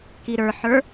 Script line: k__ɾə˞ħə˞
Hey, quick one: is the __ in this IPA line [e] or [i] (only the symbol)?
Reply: i